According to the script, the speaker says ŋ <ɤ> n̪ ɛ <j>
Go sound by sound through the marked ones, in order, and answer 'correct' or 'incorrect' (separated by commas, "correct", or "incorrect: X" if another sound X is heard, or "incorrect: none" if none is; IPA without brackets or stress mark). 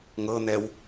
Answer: correct, incorrect: w